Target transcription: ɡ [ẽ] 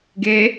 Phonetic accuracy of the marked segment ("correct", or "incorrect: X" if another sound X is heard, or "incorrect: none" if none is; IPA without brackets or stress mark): incorrect: e